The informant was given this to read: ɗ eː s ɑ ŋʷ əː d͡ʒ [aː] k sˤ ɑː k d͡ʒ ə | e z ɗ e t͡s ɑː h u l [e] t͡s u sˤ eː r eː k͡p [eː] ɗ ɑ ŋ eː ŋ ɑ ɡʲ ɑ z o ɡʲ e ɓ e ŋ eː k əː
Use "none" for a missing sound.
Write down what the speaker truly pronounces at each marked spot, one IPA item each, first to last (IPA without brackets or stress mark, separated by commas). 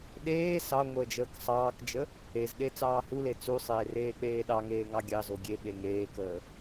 əː, e, eː